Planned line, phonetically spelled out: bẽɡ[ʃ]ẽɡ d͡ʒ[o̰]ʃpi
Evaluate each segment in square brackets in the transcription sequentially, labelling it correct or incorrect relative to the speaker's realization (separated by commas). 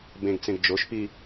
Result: incorrect, incorrect